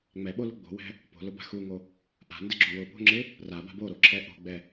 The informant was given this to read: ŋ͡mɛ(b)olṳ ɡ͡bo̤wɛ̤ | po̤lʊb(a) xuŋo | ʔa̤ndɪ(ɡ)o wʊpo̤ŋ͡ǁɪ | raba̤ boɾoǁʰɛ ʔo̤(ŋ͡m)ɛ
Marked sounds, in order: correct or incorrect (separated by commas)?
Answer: incorrect, incorrect, incorrect, incorrect